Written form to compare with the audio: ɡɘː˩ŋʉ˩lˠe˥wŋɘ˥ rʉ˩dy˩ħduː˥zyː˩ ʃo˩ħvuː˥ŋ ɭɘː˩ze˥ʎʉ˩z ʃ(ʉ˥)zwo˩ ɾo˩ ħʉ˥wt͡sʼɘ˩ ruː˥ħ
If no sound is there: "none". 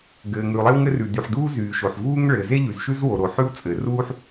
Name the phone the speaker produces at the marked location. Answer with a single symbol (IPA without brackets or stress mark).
ʉ˥